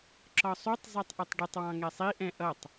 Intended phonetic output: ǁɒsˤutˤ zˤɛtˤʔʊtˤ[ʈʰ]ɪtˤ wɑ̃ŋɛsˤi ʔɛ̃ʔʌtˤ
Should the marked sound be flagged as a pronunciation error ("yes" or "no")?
yes